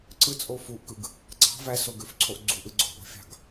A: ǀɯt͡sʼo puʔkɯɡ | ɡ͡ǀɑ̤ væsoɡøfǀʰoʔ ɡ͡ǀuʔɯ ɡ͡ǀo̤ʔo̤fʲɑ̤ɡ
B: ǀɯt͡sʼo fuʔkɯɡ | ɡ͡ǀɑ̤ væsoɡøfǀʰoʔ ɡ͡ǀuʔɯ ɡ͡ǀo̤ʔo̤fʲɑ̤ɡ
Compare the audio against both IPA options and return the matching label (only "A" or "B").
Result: B